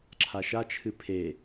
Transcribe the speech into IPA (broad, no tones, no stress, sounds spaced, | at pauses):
ǁʰ a ʃ a t͡ʃʰ ɨ pʰ e